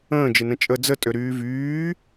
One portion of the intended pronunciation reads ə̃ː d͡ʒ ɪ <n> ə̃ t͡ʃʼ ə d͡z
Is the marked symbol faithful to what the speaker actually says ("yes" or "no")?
yes